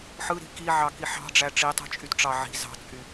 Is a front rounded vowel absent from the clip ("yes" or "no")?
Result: no